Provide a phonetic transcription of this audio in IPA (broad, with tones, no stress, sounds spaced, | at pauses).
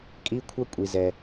kʼ i˥ kʷʰ ʌ˥ kʷʼ i˩ z ɛ˩